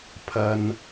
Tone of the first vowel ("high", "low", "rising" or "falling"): low